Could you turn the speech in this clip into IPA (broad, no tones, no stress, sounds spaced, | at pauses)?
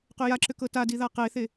q ʏ j a ǁ ʏ k ɤ t a d i ð a q e θ e